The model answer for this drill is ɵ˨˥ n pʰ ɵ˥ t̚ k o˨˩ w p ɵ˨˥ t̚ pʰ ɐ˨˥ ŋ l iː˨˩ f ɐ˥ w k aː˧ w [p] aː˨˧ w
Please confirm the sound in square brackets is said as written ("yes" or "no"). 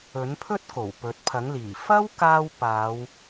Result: yes